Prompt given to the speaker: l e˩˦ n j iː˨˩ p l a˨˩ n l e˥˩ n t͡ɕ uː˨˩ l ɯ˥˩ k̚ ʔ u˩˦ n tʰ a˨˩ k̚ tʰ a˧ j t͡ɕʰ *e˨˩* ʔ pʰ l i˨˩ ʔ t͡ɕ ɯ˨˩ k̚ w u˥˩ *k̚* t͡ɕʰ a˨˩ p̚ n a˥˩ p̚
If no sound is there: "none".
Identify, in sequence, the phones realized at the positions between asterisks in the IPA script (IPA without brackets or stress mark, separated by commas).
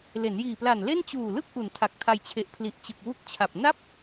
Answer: e˨˩, k̚